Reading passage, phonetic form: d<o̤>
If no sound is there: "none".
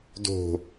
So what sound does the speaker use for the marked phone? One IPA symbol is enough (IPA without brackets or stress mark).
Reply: o̤